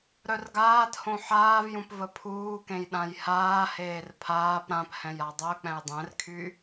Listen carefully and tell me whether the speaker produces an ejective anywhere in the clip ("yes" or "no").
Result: no